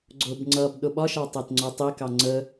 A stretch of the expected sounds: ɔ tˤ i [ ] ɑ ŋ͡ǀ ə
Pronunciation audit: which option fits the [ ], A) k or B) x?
A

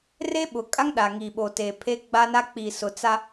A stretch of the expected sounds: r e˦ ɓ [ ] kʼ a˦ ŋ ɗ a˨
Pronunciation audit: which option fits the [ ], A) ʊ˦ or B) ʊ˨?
B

